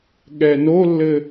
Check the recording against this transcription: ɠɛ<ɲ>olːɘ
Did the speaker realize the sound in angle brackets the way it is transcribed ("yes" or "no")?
no